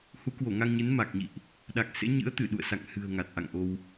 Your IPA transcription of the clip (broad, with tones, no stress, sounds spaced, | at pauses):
h u˨˦ k w o˧˩ ŋ a˧ ŋ ɲ ɨ˨˦ n m a˨˩ k̚ ɲ ḭ˧˨ ʔ | ɗ a˨˩ k̚ s ḛ˧˥ ɲ ɨ̰˧˥ ə̯ t̪ ɨ˧˩ ɗ ṵ˧˨ ə̯ s a̰˧˨ ŋ h ɨ̤˨˩ ə̯ ŋ a˨˩ t̚ ʔ a̰˧˨ ŋ ʔ o˧ w